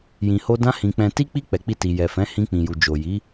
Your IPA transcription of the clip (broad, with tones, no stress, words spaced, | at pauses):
jĩ˨ho˧ dã˧hĩ˨ k͡pɛ̃˨ti˧k͡pi˧ k͡pɛ˨k͡pi˧ti˨jɛ˨ fɛ̃˨˦ hĩ˧k͡pĩ˨ju˨ d͡ʒo˨ji˨˦